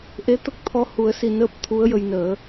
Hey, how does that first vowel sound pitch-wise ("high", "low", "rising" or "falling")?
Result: rising